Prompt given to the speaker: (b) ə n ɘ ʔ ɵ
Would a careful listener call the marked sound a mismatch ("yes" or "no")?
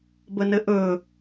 no